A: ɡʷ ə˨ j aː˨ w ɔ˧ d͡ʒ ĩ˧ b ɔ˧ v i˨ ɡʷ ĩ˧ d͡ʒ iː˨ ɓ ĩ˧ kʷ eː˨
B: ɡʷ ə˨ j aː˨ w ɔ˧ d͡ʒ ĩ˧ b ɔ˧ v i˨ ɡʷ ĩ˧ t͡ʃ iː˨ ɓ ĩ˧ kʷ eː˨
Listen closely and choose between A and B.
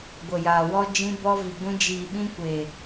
A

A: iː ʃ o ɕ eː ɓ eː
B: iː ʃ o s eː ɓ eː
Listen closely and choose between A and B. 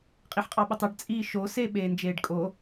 B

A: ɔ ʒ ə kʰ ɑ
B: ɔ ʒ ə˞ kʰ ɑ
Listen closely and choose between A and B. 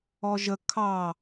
A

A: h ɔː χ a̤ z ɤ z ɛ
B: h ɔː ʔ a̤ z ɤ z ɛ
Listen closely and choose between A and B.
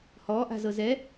B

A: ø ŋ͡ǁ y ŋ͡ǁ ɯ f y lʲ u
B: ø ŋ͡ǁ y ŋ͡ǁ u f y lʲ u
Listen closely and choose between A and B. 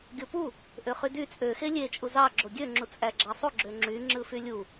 A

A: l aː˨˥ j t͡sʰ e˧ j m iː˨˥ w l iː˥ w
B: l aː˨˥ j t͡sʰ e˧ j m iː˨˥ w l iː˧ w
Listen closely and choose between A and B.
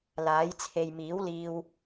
B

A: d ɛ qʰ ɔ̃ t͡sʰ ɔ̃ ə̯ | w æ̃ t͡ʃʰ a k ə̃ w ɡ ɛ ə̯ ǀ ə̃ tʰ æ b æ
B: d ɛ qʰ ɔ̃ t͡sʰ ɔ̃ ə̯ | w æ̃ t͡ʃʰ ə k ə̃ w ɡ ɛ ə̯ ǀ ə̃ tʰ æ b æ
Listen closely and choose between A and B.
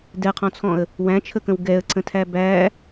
B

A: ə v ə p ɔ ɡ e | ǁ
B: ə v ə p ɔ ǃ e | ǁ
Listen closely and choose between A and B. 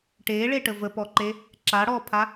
B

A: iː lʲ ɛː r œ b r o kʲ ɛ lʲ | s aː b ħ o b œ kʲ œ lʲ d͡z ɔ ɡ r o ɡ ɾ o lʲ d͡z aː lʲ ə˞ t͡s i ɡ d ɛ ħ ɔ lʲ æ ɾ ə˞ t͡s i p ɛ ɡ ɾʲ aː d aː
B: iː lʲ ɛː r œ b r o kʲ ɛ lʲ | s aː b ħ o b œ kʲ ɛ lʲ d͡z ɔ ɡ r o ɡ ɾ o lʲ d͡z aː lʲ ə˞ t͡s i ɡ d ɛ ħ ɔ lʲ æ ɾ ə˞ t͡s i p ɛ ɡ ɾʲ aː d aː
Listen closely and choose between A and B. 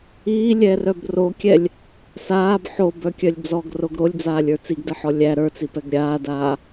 A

